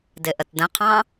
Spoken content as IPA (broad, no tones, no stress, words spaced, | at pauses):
dɪʔətdə̃qʰɑ̃